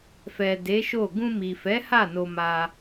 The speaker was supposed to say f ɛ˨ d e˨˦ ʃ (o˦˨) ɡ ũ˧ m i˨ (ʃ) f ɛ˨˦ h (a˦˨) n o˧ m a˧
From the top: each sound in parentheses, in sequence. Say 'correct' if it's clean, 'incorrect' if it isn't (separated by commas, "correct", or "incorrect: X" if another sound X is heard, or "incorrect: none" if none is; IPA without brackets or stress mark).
correct, incorrect: none, correct